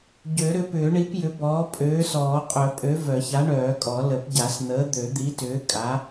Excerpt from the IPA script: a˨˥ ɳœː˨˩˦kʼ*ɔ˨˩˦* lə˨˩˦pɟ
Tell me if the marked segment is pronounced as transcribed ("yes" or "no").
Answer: yes